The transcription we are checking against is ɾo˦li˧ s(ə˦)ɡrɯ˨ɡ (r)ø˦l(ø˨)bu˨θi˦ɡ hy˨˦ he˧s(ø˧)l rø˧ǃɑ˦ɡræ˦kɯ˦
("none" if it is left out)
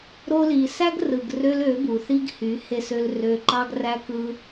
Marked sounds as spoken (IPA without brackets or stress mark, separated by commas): æ˦, r, ø˨˦, ø˧